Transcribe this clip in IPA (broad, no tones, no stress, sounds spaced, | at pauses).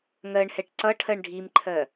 ŋ ɜ ɳ h ɛ ʈ ǀ ʌ ʈʰ ɜ ɳ ɖʱ i m ǃʰ ɜ